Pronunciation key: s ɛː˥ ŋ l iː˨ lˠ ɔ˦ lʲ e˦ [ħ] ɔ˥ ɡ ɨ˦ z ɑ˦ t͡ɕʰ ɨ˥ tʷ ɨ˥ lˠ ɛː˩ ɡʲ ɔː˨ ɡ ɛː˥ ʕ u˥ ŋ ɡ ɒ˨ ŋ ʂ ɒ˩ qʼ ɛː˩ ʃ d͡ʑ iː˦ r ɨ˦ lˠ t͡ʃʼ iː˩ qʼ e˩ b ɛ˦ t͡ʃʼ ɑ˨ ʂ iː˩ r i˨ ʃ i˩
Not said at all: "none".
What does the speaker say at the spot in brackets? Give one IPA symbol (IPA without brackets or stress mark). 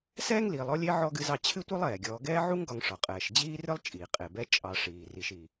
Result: ʕ